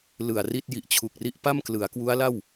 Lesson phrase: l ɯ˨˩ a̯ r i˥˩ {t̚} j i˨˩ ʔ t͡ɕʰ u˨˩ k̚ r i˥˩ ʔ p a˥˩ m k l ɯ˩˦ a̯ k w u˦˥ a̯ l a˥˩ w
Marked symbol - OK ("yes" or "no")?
yes